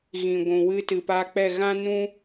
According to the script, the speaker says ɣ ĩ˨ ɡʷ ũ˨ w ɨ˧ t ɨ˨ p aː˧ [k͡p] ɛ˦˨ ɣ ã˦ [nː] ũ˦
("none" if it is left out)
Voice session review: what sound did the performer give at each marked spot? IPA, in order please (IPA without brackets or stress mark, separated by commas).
k͡p, n